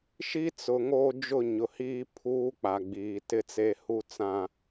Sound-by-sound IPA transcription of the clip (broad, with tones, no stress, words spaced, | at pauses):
ʃi˦t͡sʊ˨ŋoː˦ d͡ʒʊ˦˨ɲʊ˨hiː˦ pʰuː˦ k͡pa˨ɡ͡biː˨tɪ˦t͡se˦ hu˦t͡sã˦